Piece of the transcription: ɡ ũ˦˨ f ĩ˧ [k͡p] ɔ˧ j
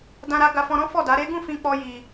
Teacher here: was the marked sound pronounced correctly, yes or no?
yes